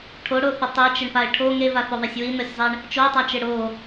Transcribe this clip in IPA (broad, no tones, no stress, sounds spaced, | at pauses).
ʈʰ o ɽ o θ ə tˤ e t͡ʃ ɪ ɳ p a ɪ̯ ʈʰ o ŋ e v a θ o ðˤ a sʲ w i n o sʲ zˤ e ɳ | t͡ʃ o tˤ a t͡ʃ ɪ ɽ o